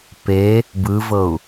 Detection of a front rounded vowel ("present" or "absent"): absent